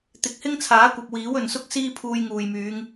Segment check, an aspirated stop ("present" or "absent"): present